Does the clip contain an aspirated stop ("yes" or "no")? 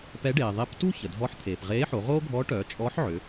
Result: yes